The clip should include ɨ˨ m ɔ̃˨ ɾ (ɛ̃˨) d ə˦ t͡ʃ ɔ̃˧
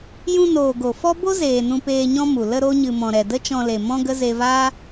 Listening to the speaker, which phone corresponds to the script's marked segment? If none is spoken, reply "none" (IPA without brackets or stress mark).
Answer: ɛ˨